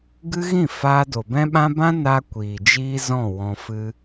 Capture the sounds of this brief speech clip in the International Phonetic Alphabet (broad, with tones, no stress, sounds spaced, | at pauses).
ɡ ɨ˦ ɣ ĩ˦˨ f aː˧ d o˨ b ɛ̃˦ ɓ ã˦ b ã˦ n a˦ kʷ iː˨ d͡ʒ iː˦ z ɔ̃˦˨ w ɔ̃˧ f ɨ˦